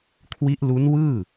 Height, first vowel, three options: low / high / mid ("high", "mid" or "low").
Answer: high